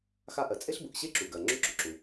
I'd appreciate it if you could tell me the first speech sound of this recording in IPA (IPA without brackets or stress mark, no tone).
x